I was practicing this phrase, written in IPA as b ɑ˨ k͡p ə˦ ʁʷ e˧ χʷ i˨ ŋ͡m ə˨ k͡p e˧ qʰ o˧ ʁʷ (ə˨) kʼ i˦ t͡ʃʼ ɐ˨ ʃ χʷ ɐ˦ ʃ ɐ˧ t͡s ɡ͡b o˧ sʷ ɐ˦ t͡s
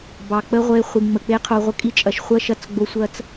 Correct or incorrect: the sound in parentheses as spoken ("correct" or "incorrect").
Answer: incorrect